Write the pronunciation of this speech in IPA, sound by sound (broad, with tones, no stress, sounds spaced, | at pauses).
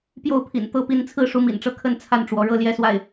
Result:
p j o˥˩ ʊ̯ pʰ ḭ˨˩ n t̪ ɤ˥ p i˧˥ n t͡sʰ ɹ̩˥˩ ʂ u˧˥ m ḭ˨˩ n ʈ͡ʂ ɤ˥˩ kʰ ə˥ n t͡sʰ a˥˩ n ʈ͡ʂ w ɔ˧˥ ɻ ɤ˥˧ l j ɛ˥˧ s w a˥˩ ɪ̯